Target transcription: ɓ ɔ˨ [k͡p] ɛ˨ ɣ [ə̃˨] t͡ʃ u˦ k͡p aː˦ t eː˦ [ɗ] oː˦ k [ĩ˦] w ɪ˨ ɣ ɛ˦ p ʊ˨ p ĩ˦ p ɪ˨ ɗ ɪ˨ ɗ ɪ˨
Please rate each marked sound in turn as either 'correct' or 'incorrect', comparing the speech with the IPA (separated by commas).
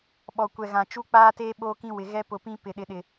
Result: incorrect, incorrect, incorrect, correct